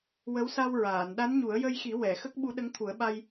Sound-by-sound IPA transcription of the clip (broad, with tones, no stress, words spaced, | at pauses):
wə˧˥wsa˧wɹaː˨˩˨n ɗa˧˥nɲu˨˩˦ə̯jə˧jxi˨˩˦ wɛ˨˩˨xə˦˥k̚ ɓu˧˥ɗə˧˥ŋt̪ʰu˨˩˦ə̯ɓa˧j